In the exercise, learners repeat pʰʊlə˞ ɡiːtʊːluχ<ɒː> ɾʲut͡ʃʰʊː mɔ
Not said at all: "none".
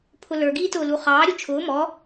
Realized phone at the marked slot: ɑː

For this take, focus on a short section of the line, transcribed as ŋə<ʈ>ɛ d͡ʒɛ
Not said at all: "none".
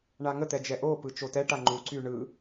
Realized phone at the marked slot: t̪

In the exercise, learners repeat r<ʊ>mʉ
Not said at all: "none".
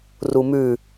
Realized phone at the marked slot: u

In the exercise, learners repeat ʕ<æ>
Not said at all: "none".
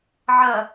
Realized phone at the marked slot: ɜ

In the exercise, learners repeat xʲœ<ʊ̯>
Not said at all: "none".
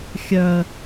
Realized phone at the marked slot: ə̯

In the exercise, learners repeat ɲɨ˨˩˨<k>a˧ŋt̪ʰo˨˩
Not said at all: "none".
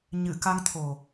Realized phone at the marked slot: k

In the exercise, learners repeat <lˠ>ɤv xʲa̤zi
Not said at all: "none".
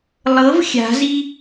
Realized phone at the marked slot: lˠ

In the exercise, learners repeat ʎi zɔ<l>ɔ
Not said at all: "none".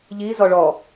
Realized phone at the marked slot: ɭ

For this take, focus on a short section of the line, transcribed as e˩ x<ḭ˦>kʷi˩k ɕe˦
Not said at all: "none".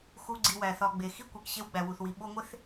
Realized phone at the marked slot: i˦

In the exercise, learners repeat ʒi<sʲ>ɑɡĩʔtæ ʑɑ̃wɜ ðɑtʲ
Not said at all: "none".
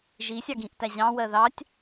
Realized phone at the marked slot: sʲ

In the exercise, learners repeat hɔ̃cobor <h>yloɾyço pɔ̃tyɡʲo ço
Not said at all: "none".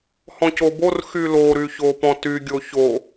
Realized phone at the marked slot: x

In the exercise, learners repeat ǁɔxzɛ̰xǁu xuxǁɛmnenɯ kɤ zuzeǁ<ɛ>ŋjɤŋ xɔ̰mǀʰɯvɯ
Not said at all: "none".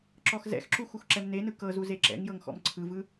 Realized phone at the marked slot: ɛ̰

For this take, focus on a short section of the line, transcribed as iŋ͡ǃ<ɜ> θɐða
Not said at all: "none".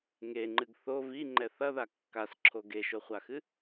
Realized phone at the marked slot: ɛ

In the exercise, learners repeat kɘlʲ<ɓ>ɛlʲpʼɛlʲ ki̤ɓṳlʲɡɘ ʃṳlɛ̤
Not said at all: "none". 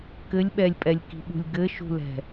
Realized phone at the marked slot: ɓ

